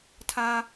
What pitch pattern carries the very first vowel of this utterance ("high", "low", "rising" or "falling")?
high